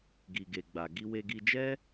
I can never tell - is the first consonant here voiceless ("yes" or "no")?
no